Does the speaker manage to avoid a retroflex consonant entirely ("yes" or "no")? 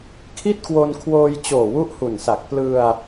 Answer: yes